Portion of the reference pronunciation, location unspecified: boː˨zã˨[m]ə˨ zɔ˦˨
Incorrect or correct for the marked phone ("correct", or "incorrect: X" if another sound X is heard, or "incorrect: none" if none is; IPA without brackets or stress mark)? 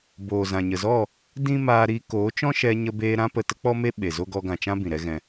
incorrect: ɲ